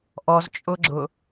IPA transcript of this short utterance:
ʔɔzt͡ʃʼʊɡ͡ǁʊ

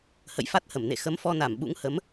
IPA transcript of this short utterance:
hə̰˧˨jfa˦˥t̚hə˧˩mnḛ˧˨ xə˨˦mfɔ˧na˧˩m ɓṵ˧˥ŋhə˨˦m

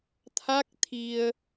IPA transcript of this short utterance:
t̪ʰa˦˥k̚t̪ʰi˧ə̯

